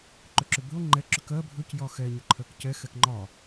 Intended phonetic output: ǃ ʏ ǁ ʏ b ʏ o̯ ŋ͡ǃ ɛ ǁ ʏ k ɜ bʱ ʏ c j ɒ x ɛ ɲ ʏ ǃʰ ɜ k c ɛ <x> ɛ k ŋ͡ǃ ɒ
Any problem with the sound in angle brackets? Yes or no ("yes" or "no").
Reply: no